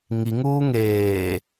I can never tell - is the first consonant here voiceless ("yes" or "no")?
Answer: no